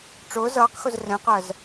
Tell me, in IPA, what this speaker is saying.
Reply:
ʈ͡ʂ ʊː z ʌː q x ʊ z r ɛ̃ q ɜ z

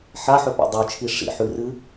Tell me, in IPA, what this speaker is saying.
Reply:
ħ a ħ ɵ p a̰ dˤ ɵ t͡ʃʰ i ʂ ḭ ħ ʉ r ɨ

